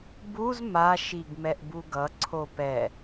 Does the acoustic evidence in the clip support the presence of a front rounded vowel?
no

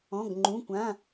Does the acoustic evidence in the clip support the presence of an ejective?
no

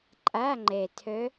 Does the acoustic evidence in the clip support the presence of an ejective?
yes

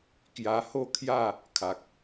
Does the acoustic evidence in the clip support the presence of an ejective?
no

